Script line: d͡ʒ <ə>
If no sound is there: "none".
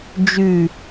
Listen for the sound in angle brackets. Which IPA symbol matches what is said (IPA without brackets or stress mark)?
ʉ